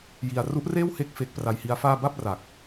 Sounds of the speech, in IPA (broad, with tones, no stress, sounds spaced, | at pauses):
j i˧ a̯ r u˦˥ ʔ r eː˥˩ w h e˦˥ k̚ f e˦˥ k̚ p r a˧ j h i˦˥ a̯ f aː˥˩ b a˥˩ p̚ r a˨˩ k̚